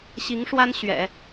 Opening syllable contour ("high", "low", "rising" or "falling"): rising